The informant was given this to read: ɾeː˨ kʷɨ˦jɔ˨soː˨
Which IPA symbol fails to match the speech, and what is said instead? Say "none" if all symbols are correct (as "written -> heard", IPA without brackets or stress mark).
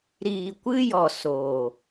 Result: eː˨ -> iː˨